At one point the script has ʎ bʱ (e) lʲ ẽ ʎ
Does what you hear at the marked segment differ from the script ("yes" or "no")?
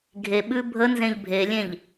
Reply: no